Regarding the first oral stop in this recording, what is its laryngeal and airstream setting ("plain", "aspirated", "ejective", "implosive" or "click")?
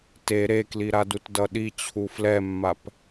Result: plain